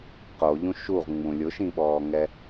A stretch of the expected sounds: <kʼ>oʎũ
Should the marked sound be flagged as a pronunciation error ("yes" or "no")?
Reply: yes